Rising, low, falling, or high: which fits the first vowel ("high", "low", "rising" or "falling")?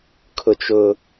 high